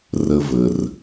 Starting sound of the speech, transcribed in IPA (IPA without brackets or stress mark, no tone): r